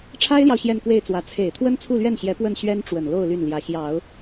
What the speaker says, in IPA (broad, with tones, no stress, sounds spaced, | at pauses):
ʈ͡ʂʰ a˥ ɪ̯ l j ɑ˨ ʊ̯ ɕ j ɛ˥˧ n k w e˥˩ ɪ̯ t͡s w ä˧˥ t͡sʰ e˨˩ ɪ̯ t̪ʰ w ə˥ n t͡sʰ u˥˧ l ɥ ɛ˥˩ n ɕ j ɛ˧˥ p w ə˥˩ n ɕ ɥ ɛ˥ n ʈ͡ʂ w ə˨˩ n l o˥˧ ʊ̯ l y˥˩ n l j ä˧˥ ɕ j ɑ˨˩˦ ʊ̯